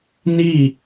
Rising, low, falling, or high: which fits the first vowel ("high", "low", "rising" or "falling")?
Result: falling